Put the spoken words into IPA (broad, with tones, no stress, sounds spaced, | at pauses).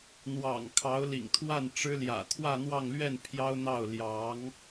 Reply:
n̪ w ɑ̰˨˩ ŋ kʰ ɑ˧˥ ʊ̯ l ḭ˨˩ ŋ t̪ʰ w a˥˩ n ʈ͡ʂ ɻ̩˥ l j ä̰˨˩ t̪ʰ w ä˥˧ n̪ w ɑ˥˧ ŋ l ɥ ɛ˥˩ n pʰ j ɑ˥ ʊ̯ n̪ ɑ˥˩ ʊ̯ l j ɑ˧˥ ŋ